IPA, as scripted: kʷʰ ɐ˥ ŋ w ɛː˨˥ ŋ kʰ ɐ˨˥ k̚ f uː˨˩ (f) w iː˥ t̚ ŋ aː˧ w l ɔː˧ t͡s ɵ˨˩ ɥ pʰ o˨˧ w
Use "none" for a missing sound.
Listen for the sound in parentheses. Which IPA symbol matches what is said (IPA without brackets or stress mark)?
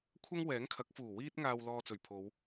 none